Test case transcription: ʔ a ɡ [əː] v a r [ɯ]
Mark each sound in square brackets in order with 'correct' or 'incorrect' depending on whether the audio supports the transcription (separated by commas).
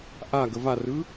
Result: incorrect, correct